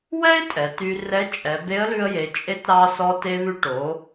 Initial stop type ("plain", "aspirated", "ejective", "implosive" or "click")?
ejective